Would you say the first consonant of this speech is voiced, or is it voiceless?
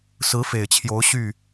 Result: voiceless